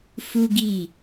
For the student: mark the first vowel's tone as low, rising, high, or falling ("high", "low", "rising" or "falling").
high